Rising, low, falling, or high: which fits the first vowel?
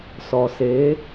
low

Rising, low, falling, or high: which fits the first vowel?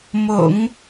low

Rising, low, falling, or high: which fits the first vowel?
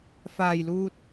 low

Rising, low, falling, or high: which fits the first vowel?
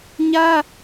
high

